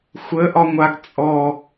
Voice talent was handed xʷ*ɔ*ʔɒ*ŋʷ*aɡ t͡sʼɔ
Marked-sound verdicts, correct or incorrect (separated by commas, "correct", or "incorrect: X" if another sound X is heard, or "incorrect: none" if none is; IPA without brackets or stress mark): incorrect: ə, correct